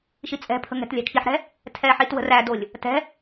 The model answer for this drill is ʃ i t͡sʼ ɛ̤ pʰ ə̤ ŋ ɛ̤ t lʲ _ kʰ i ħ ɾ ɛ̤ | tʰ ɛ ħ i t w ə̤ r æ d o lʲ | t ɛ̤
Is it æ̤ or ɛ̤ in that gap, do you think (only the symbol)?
æ̤